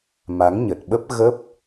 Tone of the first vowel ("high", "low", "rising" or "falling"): rising